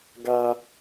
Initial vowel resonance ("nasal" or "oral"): oral